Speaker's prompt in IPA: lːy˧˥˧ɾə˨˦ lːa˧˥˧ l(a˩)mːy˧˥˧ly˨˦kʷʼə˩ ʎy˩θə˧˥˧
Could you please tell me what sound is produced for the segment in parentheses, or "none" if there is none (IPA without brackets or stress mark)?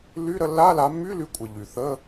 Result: a˨˦